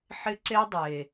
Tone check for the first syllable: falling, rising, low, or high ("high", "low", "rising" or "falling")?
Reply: high